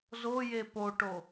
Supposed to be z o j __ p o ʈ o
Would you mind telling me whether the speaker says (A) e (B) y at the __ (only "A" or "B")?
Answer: A